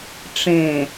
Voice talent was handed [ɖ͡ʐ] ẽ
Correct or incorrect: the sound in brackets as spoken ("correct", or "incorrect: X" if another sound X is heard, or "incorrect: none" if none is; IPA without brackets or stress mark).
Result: incorrect: ʈ͡ʂ